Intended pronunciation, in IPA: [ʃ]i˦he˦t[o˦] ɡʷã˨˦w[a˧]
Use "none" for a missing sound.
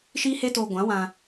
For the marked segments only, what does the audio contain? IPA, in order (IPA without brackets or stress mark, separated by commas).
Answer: ʃ, o˧, ã˧